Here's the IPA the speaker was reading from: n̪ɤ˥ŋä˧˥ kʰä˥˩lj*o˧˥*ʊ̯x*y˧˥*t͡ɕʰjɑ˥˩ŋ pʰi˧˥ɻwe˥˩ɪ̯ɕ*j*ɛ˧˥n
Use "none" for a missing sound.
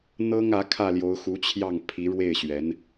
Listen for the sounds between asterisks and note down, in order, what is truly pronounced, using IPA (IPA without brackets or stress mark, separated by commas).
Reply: o˧˥, u˧˥, ɥ